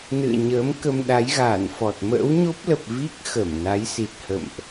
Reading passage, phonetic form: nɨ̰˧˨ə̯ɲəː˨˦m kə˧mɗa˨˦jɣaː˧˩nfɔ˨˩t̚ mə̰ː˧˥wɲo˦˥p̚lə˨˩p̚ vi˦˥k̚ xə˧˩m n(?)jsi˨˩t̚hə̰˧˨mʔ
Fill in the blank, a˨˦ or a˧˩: a˨˦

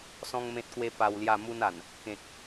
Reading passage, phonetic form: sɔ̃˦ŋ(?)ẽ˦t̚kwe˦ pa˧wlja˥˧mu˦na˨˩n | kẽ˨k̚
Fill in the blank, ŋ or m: m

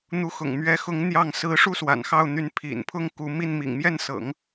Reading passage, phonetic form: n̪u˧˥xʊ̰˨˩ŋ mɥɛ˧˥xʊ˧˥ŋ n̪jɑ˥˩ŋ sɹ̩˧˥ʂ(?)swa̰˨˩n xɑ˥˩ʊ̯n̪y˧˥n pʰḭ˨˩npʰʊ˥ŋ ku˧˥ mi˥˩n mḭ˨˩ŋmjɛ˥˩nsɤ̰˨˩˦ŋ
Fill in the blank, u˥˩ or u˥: u˥˩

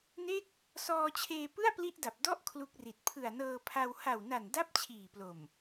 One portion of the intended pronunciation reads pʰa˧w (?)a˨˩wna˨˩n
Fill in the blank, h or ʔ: h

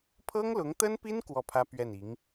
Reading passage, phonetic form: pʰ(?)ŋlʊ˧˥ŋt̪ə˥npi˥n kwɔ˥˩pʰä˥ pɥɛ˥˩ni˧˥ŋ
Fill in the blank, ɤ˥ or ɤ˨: ɤ˥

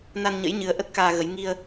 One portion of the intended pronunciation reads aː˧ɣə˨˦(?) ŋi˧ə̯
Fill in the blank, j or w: j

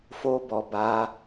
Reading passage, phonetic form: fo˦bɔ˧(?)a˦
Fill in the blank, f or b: b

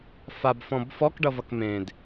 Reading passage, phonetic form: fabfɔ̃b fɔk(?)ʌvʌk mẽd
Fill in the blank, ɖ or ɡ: ɖ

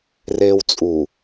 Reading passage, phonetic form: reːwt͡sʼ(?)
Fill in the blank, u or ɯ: u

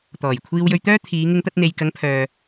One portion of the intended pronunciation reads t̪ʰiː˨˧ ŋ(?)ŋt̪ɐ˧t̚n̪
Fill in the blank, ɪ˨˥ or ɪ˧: ɪ˧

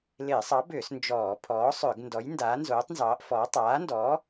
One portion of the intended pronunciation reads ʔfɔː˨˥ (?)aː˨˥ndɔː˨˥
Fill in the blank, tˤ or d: tˤ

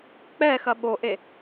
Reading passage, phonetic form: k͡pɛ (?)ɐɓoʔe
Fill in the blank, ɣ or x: x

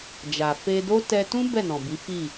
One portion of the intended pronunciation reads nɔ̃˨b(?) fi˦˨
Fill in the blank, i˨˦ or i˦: i˨˦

